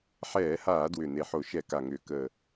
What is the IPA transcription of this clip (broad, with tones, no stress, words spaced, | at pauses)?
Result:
ħɛː˧˩˧haː˧˩˧dwʏ˨˩ ne˨˩ħo˧˩˧ ʃɛ˧˩˧ka˨˩ŋʏː˨˩ kəː˨˩